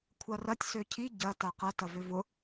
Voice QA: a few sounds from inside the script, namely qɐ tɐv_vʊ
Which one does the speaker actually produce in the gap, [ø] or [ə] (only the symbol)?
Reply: ø